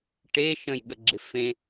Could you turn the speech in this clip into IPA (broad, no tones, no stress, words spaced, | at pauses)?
ʈe ʃə̃jɠəɡ͡ǁɪ fẽ